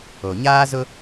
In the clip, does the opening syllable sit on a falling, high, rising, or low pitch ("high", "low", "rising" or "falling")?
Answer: low